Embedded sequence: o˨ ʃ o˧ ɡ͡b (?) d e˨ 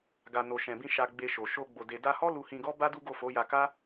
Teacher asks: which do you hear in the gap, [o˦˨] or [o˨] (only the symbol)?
o˨